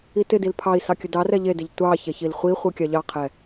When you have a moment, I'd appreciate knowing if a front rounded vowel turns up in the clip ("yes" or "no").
no